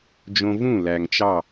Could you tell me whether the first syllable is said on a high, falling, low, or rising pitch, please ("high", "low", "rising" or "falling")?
high